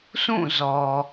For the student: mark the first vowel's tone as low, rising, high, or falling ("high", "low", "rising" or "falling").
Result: falling